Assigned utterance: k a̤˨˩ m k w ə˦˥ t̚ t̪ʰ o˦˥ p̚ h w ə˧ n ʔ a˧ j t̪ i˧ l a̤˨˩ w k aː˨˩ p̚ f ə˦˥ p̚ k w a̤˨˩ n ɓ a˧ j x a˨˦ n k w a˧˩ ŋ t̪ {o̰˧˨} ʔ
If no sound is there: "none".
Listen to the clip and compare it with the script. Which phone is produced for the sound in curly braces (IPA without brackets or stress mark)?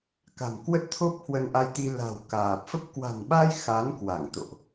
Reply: o̰˧˨